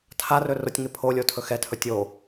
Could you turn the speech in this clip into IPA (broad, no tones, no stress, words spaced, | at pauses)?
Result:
tʰarɵ rʊtʲŋɪ pʰolʲo tʰɵxɛtʰɵ tʲo